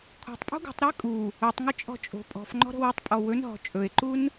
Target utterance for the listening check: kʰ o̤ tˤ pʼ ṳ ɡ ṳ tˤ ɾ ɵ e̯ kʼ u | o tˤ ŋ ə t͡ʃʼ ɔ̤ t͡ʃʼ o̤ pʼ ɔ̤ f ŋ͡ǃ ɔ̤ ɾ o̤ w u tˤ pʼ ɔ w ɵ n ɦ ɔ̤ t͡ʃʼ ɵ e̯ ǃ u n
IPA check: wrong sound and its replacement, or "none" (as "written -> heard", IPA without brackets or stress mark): none